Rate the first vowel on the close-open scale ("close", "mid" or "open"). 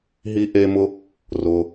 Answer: close